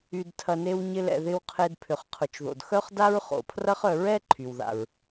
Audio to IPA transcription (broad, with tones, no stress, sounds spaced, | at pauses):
y˩ d tʰ ɐ˩ n e˨ w ɲ ɪ˨ l ɛ̰˩ ð ɪ˨ w qʰ e˨ d pʰ ʏ˩ χ qʰ ʊ˩ t͡ʃ ð o̰˩ d x œ˦ χ d a˦ ɹ χ o̰˩ pʰ r ɐ˦ χ œ˨ ɹ ɛ˥ ǃʰ y˩ w ð a̰˩ ɹ